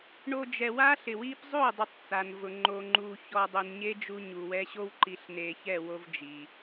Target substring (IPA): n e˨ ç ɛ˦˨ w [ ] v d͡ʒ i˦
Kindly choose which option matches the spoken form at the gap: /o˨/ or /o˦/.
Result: o˦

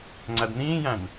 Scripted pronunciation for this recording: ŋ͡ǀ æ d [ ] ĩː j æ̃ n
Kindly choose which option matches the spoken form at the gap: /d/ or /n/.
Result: n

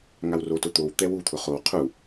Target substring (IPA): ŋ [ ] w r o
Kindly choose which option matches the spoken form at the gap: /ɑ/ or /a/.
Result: a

